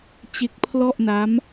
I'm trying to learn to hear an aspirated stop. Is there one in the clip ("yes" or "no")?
yes